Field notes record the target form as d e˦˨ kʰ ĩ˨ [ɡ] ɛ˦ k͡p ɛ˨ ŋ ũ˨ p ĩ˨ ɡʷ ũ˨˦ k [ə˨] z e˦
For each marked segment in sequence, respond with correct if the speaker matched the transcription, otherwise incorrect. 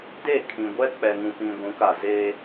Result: incorrect, incorrect

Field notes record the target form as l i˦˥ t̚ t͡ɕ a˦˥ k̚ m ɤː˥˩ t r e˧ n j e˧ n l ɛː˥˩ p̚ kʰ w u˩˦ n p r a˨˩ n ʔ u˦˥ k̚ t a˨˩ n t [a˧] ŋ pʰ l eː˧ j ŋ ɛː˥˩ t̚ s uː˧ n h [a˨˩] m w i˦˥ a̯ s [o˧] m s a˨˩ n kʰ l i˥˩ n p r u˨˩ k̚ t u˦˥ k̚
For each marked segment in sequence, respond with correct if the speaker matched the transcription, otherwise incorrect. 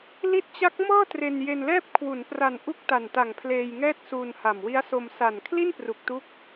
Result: incorrect, correct, correct

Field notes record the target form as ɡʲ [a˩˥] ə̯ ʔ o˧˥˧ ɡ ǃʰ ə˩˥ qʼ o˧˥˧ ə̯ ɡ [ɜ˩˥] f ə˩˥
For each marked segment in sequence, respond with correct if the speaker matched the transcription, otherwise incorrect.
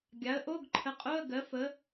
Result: correct, correct

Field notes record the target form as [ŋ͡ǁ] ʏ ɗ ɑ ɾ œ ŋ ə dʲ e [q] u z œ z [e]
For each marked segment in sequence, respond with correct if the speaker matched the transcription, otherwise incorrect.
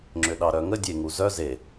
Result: correct, incorrect, correct

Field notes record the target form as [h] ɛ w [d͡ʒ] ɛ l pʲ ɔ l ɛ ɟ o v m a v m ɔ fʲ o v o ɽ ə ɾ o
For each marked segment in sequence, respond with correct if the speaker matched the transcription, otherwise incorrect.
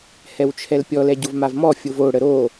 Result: correct, incorrect

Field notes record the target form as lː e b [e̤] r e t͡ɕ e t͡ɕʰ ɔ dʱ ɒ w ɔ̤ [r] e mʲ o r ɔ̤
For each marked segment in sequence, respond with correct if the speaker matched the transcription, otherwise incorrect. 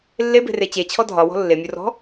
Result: correct, incorrect

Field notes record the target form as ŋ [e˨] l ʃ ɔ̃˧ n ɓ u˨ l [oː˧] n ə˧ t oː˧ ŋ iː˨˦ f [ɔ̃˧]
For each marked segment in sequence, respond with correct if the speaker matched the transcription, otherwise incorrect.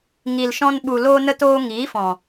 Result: incorrect, correct, incorrect

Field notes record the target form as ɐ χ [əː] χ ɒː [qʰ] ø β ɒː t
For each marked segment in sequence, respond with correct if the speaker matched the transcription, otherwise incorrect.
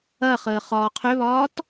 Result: correct, correct

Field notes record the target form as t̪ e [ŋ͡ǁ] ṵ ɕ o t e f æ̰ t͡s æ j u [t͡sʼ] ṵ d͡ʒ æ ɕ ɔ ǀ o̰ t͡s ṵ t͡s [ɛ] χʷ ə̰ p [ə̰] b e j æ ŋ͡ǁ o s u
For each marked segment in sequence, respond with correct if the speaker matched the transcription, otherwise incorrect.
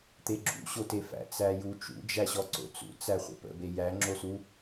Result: incorrect, incorrect, incorrect, correct

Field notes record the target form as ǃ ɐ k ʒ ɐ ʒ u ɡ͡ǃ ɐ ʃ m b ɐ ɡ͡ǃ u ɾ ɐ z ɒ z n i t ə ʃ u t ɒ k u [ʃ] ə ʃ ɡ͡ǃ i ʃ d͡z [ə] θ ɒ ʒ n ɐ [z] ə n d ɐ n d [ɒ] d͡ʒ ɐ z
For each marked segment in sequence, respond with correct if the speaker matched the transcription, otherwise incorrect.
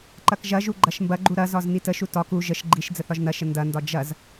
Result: incorrect, correct, incorrect, correct

